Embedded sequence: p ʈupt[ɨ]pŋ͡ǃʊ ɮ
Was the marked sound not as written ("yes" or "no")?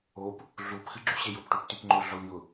yes